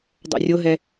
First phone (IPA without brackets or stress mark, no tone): dˤ